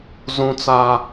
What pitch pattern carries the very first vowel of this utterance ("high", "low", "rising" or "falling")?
high